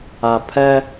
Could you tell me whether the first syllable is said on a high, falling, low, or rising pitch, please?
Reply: low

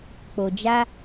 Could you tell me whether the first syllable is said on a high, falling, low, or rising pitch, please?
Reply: low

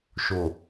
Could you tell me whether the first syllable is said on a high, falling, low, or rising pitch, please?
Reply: low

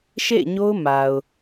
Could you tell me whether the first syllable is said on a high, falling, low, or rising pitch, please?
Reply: falling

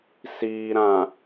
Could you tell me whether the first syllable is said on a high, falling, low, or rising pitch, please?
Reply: low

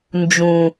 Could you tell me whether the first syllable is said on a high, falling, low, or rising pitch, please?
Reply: low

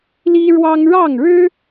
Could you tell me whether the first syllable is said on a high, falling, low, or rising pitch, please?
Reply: high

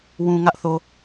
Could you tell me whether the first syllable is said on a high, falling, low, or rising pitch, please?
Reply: low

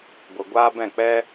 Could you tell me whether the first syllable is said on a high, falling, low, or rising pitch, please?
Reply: low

